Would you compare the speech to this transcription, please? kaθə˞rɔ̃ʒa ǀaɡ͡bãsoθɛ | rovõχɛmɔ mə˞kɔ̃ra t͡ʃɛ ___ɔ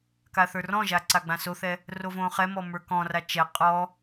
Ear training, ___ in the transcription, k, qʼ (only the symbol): qʼ